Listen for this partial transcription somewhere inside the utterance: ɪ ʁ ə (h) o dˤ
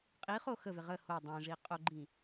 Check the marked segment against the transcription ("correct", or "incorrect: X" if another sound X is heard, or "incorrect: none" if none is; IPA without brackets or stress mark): correct